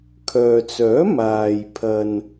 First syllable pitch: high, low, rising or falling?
low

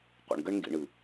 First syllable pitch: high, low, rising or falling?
low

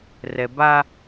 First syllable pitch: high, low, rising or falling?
low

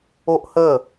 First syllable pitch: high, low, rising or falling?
high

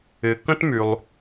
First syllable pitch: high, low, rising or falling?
low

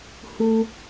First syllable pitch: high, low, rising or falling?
high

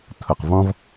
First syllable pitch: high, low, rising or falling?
low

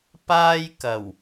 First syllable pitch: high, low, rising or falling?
high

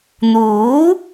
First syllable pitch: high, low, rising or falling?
rising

